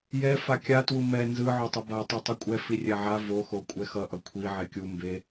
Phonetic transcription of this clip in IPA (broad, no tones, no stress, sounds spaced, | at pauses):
j ɛ f a kʲ a t w u m ɛ n z ɯ ʕ o tˤ ɛ b a tˤ u tˤ u kʷʼ ɛ f i rʲ ɛ ʕ a v o x o kʷʼ ɛ x ʌ ʔ ʌ kʷʰ i ʕ e kʲ u m b e